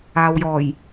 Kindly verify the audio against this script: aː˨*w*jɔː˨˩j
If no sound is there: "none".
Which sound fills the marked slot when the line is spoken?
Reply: w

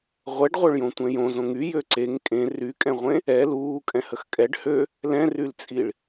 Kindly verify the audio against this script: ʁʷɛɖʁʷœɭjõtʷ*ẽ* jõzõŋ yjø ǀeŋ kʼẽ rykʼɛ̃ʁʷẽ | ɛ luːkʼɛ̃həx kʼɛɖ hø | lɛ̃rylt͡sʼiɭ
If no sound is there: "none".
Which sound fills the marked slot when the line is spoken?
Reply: ɛ̃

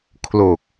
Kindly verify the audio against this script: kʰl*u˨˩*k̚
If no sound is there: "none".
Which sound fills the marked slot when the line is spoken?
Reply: o˨˩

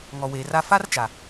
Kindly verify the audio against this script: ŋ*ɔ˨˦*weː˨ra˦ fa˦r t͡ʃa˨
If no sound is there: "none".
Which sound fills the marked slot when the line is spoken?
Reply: ɔ˨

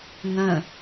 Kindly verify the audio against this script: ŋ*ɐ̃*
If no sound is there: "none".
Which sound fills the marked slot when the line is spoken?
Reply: ɐ̃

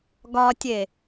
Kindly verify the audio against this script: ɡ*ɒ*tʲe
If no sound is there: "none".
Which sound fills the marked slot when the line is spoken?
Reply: ɒ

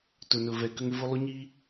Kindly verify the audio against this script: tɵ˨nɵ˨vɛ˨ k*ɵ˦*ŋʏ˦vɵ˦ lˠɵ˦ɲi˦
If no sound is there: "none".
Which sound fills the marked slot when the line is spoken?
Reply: ə˦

